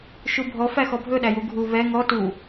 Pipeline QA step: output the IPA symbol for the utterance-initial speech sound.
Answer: ʃ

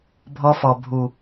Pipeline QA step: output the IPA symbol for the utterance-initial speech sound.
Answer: bʱ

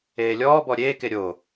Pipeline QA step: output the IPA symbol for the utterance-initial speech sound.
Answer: eː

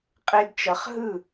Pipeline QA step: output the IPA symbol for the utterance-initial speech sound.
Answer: qʼ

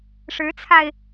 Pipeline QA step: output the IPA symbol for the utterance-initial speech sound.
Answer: ʂ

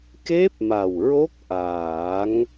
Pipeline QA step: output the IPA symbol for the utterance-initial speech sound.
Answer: k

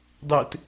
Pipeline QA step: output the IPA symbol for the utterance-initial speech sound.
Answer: dˤ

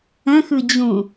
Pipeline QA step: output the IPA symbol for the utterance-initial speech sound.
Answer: ə̃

